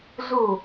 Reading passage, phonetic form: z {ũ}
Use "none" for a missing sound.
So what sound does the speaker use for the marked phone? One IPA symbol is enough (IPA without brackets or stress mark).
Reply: u